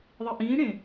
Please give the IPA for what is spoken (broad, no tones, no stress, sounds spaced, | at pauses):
ðˤ i ʔ ĩː ɽ ẽ